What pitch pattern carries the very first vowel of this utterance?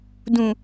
low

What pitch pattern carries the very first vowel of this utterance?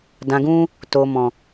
low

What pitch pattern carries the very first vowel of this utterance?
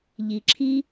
low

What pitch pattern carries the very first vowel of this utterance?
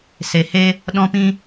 low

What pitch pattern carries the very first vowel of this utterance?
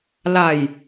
low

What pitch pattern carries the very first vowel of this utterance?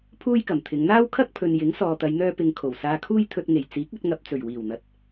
high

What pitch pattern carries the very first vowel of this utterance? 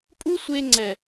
high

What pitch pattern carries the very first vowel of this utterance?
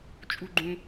high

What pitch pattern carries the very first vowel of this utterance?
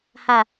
low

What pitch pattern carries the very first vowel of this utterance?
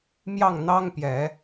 falling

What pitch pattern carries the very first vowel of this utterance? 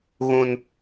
high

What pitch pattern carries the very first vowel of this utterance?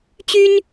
high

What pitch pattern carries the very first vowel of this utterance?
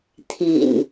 low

